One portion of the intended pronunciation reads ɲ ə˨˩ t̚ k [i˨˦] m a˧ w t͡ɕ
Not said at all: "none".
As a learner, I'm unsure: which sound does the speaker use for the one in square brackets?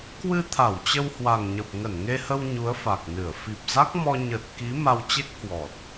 i˨˦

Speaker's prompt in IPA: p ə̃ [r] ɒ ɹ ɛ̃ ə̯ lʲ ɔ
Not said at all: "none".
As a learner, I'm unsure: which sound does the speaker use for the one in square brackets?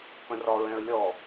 r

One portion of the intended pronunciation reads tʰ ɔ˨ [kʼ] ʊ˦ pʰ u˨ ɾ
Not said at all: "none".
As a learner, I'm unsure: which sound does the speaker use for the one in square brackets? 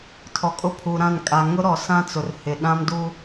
kʼ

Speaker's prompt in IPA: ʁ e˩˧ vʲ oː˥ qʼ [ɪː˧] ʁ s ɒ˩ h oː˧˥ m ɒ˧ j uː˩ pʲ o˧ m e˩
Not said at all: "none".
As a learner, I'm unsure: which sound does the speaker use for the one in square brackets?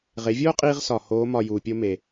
iː˧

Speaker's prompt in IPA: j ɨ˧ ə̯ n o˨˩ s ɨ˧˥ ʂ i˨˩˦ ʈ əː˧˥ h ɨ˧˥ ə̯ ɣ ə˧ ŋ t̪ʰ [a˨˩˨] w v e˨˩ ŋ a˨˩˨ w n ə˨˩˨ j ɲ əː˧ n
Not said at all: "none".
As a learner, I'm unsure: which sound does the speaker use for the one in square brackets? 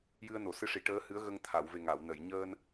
a˨˩˨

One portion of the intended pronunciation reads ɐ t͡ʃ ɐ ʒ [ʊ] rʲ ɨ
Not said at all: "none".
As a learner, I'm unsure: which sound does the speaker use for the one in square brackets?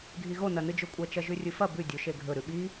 ʉ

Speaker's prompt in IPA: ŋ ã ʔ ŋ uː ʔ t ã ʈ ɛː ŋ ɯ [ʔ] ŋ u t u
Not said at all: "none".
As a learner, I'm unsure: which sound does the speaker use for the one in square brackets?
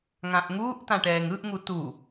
ʔ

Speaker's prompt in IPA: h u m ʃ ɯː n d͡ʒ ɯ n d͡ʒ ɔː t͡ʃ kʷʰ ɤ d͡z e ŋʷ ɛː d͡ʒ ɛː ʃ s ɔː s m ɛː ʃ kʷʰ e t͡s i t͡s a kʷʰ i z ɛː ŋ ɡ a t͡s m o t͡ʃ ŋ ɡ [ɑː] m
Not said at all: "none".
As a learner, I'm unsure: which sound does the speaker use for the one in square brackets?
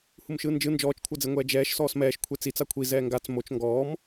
ɔː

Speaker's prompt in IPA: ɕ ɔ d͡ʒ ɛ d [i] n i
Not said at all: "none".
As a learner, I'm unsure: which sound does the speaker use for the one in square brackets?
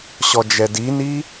i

